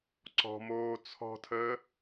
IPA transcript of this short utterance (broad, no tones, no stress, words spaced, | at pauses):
ǀɔ̤moː t͡sʰɔ̤tʰəː